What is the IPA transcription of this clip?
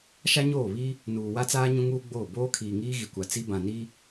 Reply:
ʃ a˦ ɲ oː˦˨ β i˦ | n uː˨ w a˦ t͡s aː˦ ɲ ũ˦ ŋ uː˦ ɡ͡b oː˦˨ b oː˦ kʰ iː˨ ŋ iː˦ ɣ i˨ kʷ a˨ t͡s i˦ b ã˨ n i˦

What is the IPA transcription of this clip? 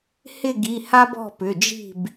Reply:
h ɪ˦˨ ɡ i˩˧˩ h a˦ b ɔ̤˦˨ p ʏ˩˧˩ d͡ʒ i̤˦˨ b

